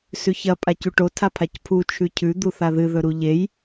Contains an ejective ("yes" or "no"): yes